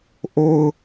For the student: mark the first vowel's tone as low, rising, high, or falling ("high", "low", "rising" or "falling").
low